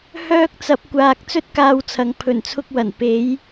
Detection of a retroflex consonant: absent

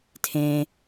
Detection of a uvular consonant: absent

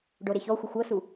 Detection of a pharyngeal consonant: absent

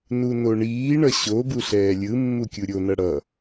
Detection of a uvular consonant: absent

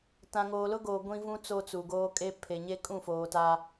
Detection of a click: absent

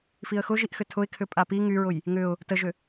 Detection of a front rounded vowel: present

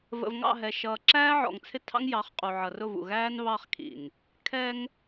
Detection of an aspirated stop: present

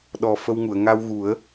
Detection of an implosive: present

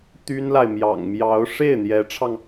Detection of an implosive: absent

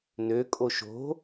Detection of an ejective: present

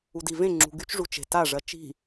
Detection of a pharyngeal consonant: absent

